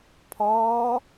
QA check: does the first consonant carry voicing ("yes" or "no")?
no